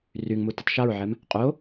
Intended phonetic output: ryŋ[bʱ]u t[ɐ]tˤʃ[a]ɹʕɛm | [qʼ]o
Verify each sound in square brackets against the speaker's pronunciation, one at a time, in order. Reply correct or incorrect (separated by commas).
incorrect, incorrect, correct, correct